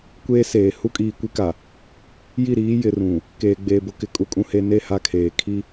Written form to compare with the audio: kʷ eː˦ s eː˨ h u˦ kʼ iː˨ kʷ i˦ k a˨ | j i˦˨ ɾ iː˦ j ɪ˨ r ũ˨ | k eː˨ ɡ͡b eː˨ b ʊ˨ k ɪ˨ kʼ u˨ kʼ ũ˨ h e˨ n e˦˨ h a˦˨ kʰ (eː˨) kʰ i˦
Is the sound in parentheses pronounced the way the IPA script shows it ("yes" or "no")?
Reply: yes